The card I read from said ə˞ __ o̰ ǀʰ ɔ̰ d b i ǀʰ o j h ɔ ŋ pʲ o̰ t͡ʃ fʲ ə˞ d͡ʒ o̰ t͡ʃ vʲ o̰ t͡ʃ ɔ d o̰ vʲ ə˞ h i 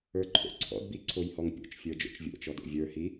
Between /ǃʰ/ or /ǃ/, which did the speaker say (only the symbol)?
ǃʰ